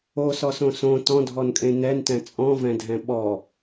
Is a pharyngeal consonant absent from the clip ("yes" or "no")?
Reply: yes